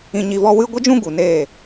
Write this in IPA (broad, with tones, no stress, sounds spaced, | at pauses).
ĩ˧ ɲ i˧ v ɔ˦ w ɨ˦ ɡʷ ə˦ d͡ʒ ũ˦ ɡ u˨ n eː˦˨